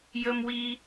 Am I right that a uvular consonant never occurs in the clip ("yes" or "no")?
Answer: yes